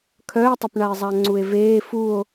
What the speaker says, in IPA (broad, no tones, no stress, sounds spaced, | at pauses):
kʰ œ e̯ tˤ ə p ɳ a e̯ zˤ a ŋ͡ǀ u e̯ v eː f u o̯